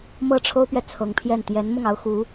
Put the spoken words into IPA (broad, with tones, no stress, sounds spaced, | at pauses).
m ɤ˥˩ ʈ͡ʂʰ o˥ ʊ̯ p ɥ ɛ˨ t͡sʰ ɤ˧˥ ŋ pʰ j ɛ˥˩ n t̪ j ɛ˧˥ n m ʊ˥˩ ŋ ɑ˥ ʊ̯ x u˧˥